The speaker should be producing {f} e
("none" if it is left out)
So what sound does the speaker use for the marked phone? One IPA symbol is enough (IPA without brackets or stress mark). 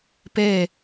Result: p